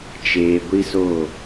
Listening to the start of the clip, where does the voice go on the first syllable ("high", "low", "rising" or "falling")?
low